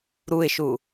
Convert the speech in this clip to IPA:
ɾ u ɪ̯ ʃ u

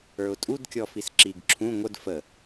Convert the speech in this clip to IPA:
ə˞ ʊ̯ tʼ u d kʲ ɔ f i s ǁ i ɡ ǁʰ ũ ŋʷ ə d f ə

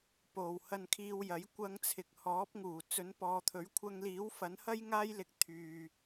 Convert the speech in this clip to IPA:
p o˨ w h ɐ˧ n kʰ iː˧ w j ɐ˨˥ j kʷ ɐ˧ ŋ t͡sʰ ɪ˨ k̚ h ɔː˨˥ p̚ ŋ uː˨˩ t͡s ɵ˨˥ n p ɔː˨˧ t̪ʰ ɵ˨˥ ɥ kʷʰ ɐ˧ ŋ l iː˨˥ w f ɐ˨˥ n h ɐ˥ j ŋ aː˥ j l ɪ˧ k̚ t̪ʰ yː˨

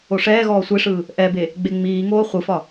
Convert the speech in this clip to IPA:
o ʂ ɛː ɣ ɔː sʷ e ʂ ɯː | ʔ ɛ b e | ɡ͡b e ŋ͡m iː ŋ oː χʷ ɯ f ɒ

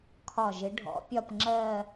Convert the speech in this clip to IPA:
kʰ ɒ˧˩ ʒ ɪ˨˦ ɖʱ ɔ̰˨˦ pʲ ɒ˥˧ p ŋ͡ǁ ɜː˥˧

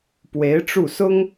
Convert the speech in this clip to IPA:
p w e˧˥ ɪ̯ ʈ͡ʂ u˥˩ s ʊ˥ ŋ

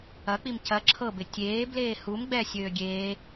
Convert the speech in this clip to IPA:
ɐ k͡p i m c ɐ ǁʰ ɤ b ɪ tʲ eː b l eː h u m ɡ͡b ɛ sʲ øː ɡʲ eː

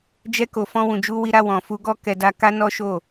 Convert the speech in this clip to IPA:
d͡ʒ ɛ˦ k o˧ f ɔ̃˦ w ũ˧ d͡ʒ u˦ w i˦ ɾ a˦ w ɔ̃˧ f u˦ ɡ ɔ˦˨ k ɛ˧ d a˧ k a˦ n ɔ˦ ʃ o˦˨

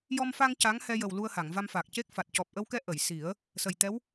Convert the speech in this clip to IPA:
j ɔ˧ m f a˧ ŋ c a˧˥ ŋ h ɛ˧ j ə˨˩ w l u˧ ə̯ h a˨˩˨ ŋ v a˧ m f aː˨˩ k̚ c e˦˥ k̚ f a˨˩ t̚ c ɔ˨˩ p̚ ʔ ə˧ w k ɛ˧˥ ʔ ə˨˩˨ j s i˨˩˦ ə̯ | s ə˨˩ j t̪ ɛ˧˥ w

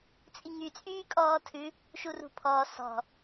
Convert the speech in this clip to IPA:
t͡sʼ i ŋ y t͡sʼ yː kʼ ɔː tʰ ʉ | ʃ u r ṳ pʰ ɔː s ɔ̤

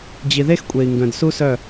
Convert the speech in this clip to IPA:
d͡ʑ i˨ ð e˦ x kʷʼ e˨ i̯ ŋ ɡ œ̃˨ d s u˦ s œ˦˨

